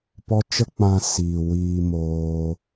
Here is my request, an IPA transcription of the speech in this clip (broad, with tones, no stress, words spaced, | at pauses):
pɔ˦ t͡ʃə˦k͡pã˧ siː˨ wiː˧moː˧